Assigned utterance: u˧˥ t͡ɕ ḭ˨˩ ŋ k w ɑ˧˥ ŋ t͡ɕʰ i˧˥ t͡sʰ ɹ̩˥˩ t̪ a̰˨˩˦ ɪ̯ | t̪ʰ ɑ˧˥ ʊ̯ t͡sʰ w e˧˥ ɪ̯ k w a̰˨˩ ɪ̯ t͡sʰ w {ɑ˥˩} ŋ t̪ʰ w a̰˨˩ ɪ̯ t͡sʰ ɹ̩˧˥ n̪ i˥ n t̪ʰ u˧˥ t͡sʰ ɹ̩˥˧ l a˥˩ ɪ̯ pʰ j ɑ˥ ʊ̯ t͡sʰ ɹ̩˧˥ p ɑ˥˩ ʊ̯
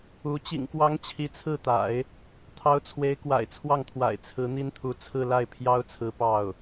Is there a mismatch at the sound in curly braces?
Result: no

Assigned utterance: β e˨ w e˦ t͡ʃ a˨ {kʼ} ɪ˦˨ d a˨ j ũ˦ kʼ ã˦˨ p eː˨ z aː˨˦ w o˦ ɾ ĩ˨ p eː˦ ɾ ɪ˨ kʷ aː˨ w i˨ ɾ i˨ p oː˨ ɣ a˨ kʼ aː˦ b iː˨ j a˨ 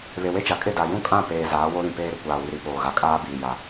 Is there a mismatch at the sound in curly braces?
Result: no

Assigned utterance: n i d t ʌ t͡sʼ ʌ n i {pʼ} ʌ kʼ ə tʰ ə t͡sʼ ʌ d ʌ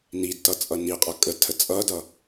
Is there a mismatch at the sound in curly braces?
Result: yes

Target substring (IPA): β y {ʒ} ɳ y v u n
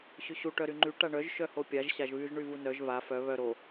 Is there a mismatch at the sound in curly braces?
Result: no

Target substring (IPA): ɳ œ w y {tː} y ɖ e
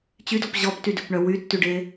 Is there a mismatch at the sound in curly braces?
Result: no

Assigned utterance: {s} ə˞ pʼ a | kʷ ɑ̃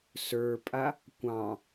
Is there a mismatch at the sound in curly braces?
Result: no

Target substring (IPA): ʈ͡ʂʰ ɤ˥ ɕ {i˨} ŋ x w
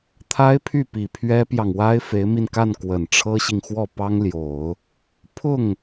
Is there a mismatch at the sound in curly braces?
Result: no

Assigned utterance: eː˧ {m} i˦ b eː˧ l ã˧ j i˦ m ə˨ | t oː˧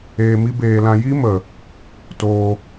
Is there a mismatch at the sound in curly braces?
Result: no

